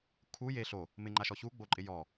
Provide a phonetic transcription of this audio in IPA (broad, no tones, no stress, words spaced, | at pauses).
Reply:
kʰu je ɬo | mɪŋ͡ǃaʃɔ çuɡ͡boǃʼɪ jɔ